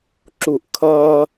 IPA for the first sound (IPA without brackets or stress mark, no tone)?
ǁ